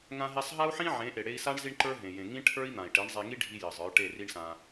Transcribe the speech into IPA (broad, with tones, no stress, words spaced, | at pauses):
ŋã˧ɦe˧sˤɦa˦u̯ħĩ˦ ʕẽ˨˦ʔe˨ɽe˧i̯sa˦ɳ zi˦ɳǃə˞˦ɦẽ˨jẽ˨ ŋĩ˦ʈʰə˞˦i̯n̪ã˨i̯ʈe˨˦ɳ zˤe˧ŋi˦ɖʱi˧ jɘ˨zˤə˞˨˦ ʈe˦˨ri˦ɳsã˧